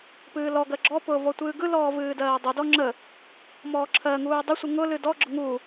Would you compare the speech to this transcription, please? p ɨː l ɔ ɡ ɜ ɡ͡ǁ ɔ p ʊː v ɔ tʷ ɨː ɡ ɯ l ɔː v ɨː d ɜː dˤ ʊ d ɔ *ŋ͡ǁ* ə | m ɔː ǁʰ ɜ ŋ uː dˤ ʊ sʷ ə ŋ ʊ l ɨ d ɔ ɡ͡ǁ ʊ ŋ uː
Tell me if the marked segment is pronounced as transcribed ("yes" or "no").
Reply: yes